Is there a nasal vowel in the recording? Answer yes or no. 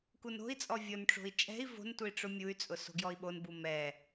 no